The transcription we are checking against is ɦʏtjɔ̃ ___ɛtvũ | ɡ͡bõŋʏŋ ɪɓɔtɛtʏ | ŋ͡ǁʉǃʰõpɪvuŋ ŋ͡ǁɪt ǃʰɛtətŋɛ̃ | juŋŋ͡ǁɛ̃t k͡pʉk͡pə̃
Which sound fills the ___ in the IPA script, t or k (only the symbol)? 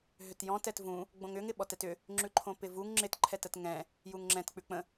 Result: t